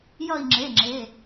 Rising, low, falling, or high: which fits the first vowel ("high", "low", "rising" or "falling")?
falling